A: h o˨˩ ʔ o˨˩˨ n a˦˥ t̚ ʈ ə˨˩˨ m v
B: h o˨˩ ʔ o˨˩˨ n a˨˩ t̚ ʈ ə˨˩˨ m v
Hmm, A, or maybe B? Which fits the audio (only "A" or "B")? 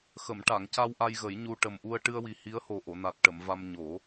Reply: B